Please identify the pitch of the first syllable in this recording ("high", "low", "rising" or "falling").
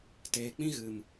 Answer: low